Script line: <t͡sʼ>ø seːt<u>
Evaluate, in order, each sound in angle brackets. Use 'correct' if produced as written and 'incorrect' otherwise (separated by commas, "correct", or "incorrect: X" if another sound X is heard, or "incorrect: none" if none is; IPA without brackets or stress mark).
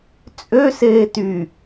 correct, incorrect: y